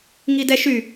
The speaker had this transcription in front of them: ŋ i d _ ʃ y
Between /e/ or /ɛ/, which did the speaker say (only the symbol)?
ɛ